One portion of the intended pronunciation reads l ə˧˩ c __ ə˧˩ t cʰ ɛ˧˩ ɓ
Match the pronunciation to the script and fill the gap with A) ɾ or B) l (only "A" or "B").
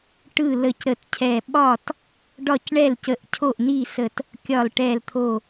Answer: A